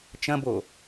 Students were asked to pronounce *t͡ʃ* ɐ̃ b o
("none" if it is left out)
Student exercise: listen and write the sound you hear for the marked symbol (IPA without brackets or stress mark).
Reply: t͡ʃ